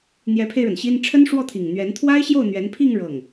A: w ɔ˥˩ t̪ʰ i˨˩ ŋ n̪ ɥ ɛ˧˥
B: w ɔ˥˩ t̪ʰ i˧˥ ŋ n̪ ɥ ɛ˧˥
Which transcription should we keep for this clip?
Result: A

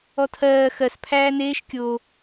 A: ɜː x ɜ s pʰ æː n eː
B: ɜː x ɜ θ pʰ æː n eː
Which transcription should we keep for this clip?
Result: A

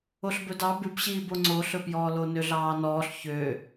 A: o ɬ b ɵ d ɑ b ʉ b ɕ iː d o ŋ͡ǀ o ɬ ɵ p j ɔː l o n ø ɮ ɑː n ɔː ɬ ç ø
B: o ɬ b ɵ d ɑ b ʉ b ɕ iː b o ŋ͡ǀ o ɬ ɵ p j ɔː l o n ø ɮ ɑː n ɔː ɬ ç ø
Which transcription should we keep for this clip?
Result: B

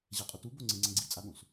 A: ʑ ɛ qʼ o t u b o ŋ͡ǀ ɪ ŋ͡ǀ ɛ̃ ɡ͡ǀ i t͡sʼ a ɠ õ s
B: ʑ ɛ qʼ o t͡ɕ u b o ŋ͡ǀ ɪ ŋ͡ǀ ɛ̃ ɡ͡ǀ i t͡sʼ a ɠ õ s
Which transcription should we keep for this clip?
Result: A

